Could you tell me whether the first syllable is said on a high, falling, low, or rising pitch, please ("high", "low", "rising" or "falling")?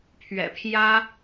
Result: low